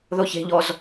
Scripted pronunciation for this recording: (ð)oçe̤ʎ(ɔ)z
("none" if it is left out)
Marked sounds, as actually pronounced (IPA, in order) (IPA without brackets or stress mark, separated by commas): ð, ɔ